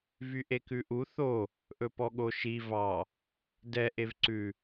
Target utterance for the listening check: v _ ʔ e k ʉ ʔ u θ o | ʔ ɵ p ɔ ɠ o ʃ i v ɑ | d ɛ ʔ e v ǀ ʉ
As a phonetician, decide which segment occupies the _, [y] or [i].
y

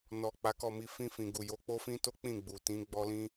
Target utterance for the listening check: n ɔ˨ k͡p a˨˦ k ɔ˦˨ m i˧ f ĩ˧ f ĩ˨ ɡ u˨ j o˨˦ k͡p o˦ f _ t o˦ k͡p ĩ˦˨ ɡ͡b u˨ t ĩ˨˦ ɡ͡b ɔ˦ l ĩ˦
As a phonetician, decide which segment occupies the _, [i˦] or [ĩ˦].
ĩ˦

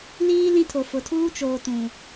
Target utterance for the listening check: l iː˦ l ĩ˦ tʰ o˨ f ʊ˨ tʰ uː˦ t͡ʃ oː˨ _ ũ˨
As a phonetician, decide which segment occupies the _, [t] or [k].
t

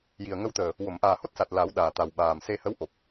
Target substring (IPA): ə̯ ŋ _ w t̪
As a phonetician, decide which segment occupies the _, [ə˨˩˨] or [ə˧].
ə˧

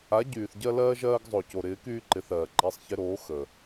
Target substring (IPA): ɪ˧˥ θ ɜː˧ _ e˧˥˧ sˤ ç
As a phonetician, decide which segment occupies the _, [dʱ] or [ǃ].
ǃ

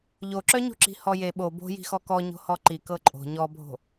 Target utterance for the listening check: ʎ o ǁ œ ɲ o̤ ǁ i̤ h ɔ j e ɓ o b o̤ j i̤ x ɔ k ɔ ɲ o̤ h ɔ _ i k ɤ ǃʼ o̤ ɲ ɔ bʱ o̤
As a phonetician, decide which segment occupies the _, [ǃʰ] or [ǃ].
ǃ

